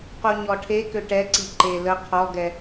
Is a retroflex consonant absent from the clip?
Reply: no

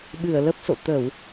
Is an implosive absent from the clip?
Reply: no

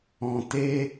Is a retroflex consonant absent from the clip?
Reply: yes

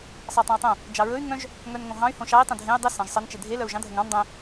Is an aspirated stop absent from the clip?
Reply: yes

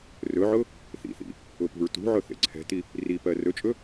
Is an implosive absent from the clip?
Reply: yes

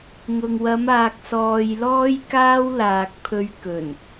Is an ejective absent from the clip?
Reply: yes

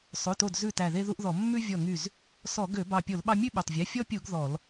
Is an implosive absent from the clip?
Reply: no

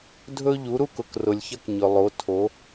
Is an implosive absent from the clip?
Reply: yes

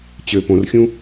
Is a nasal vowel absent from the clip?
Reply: no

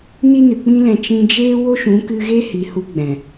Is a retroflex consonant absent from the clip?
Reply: yes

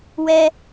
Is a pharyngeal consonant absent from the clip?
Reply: yes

